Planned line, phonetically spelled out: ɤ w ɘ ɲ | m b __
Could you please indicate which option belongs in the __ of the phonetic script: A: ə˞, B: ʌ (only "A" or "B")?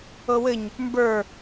A